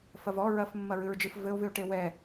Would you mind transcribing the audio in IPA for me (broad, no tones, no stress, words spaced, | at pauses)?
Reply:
fɐvɔ ɹɐfmːɐɹɨɹd͡ʒɨf vɘo̯vɨo̯ʈe wɛ